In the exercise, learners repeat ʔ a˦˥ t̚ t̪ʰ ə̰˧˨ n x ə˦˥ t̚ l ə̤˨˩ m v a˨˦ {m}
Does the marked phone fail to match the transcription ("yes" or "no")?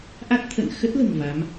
no